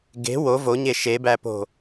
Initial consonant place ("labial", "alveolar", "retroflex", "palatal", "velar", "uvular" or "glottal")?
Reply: velar